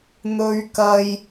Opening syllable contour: high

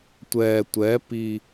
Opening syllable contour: low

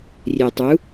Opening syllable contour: low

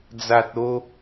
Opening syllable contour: low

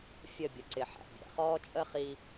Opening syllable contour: falling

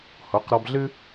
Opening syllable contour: rising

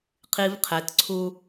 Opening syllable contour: high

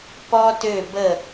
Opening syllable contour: high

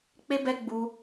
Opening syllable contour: high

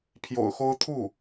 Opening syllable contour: low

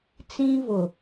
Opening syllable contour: high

